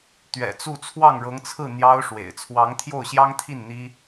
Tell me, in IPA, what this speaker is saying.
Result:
t̪ ɥ ɛ̰˨˩ t͡s u˥˧ t͡sʰ w ɑ˥˩ ŋ ɻ ɤ˧˥ ŋ t͡sʰ ɹ̩˥˩ n̪ j ɑ˥ ʊ̯ ʂ w ḛ˨˩ ɪ̯ t͡sʰ w ɑ˧˥ ŋ t̪ʰ j o˥˩ ʊ̯ ɕ j ɑ˥ ŋ t̪ʰ i˥˩ n n̪ i˥

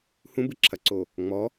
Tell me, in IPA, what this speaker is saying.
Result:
h ũ b ɨ ǁʰ ɐ ǀ o | ŋ͡m ɔ

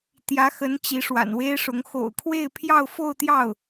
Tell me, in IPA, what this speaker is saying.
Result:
t̪ j ä˧˥ x ə˧˥ n t͡ɕ i˧˥ ʂ w a̰˨˩ n w e˥ ɪ̯ ʂ ʊ˧˥ ŋ x o̰˨˩ ʊ̯ kʰ w e˥˧ ɪ̯ pʰ j ɑ˥˧ ʊ̯ f o˥˧ ʊ̯ t̪ j ɑ˥˩ ʊ̯

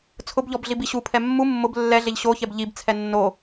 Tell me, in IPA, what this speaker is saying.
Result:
t͡sʰ ʊ b ʎ ɔ b ɮ i b i ɕ u pʰ ɛ mː u mː ʊ b lː ɛ ɮ e ʎ ɕ o ç ɛ b ʎ i b t͡sʰ ɛ nː o

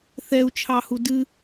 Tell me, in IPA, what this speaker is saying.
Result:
θ ɛ u̯ t͡ʃʰ ɑ h u d ɨ

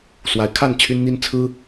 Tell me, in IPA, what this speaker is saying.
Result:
s w a˧˥ ɪ̯ kʰ a˥˩ n t͡ɕʰ y˥ n n̪ i˥ n t͡sʰ ɹ̩˥

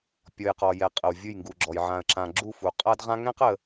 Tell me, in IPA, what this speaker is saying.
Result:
pʲ ɔ˨ j q ɔ˨ j ɛ˨ qʼ ə˨ w vʲ ɯ˦˨ j ŋ ɡ u˨ ɡ͡ǁ ɔ˨ j ʕ ã˨ ə̯ ǁ ã˨ ɡ͡ǁ u˦˨ f u˨ qʼ a˦ d ʁ ã˦ ŋ ɛ̃˦ q ə˨

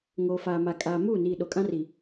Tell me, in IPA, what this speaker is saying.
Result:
ŋ oː˨ f aː˨ m a˨ kʼ aː˨ m uː˦˨ n iː˨ ɗ o˨ kʼ ã˦ r i˨

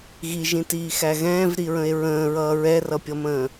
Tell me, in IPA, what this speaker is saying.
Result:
ɣ i ʒ ĩ t iː x æ ɣ ɛ̃ː v ɾ i ɹ ə̃ e̯ ɹ ə̃ː ɹ ʌː ɹ ɛ r ʌ pʲ ʌ m ə̃ː

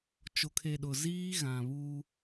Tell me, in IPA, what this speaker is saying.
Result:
t͡ʃ o˨ kʰ e˨ ɗ ʊ˨ z iː˦ ɣ ã˨ β uː˦

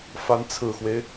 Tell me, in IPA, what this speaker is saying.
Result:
f a˧˥ n t͡sʰ ɹ̩˨˩ x w e˦ ɪ̯

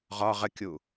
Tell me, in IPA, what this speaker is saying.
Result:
ʁ ɒ ʁ ə kʲ u

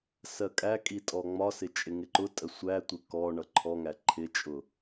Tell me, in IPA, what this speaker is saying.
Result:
s ɜ kʼ æ kʼ i tʼ ɔ ŋ͡m ɒ s ɪ t͡ʃʼ ɪ ŋ ɪ ǃ ʊ tʼ ə sʷ æ tʷ ɪ k ɔ ɳ ʌ ǃʰ ɔ ŋ æ ǃʰ ɪ t͡ʃʼ ʊ

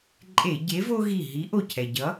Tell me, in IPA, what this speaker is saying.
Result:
ǃʼ e˧˩˧ ɟ e˨˥ v o˦ ɣ i˧˩ ɦ i˨˥ ʔ o˧˩ cʰ ɛ˩ ɟ ʌ˨˥

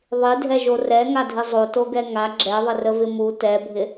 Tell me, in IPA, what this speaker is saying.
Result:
ðˤ i dʱ ɛ ʒ o r ɛ ŋ a dʱ ɪ zˤ o t o ɡ ɛ ŋ a ɡ͡ǁ ɛ ðˤ ɪ r ə v ɪ m u t ɛ bʱ ɪ

